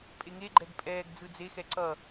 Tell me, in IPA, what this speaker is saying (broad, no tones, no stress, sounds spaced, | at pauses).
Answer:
pʼ e ŋ e ɡ͡ǃ ɛ ɡ pʼ ɛː ɡ d͡z ɯ d͡z e x ɛ ǀ ʌ